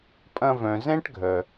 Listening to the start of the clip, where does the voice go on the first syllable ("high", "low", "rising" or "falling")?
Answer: high